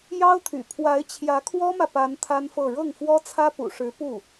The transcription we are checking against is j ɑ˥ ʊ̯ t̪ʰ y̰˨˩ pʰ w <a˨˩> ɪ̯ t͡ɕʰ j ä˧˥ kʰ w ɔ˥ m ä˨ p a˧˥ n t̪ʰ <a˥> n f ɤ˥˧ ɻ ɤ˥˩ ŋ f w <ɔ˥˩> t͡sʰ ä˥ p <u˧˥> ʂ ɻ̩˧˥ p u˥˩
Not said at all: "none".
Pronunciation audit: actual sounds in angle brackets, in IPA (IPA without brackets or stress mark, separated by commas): a˧˥, a˥, ɔ˥, ṵ˨˩